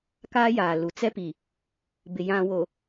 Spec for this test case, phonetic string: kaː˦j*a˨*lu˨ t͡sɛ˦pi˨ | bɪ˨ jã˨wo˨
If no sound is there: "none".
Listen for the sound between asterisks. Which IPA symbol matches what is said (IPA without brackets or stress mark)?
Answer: aː˨